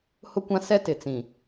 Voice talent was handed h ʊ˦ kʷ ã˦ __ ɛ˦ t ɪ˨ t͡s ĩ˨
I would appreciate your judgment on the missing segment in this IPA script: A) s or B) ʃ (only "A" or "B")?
A